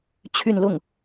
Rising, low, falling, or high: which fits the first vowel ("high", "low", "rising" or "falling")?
falling